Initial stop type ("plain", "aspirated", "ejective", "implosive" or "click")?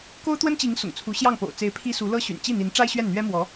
plain